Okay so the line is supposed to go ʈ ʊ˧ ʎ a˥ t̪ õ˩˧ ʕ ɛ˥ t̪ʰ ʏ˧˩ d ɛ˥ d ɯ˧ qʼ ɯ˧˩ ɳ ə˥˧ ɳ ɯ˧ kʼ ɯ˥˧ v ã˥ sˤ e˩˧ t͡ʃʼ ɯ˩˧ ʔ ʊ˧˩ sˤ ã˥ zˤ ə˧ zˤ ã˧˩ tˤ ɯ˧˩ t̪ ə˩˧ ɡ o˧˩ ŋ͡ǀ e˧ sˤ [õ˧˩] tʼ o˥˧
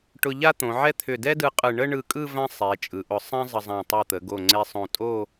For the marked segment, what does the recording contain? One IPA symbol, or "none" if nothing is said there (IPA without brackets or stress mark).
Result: õ˧˩